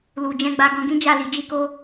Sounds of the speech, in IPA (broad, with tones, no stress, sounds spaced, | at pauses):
l u˨ d͡ʒ ɛ̃˧ ɡ͡b a˧ ɡ ɔ̃˧ ɡ ĩ˦ d͡ʒ a˦˨ l i˧ d͡ʒ i˦ k o˦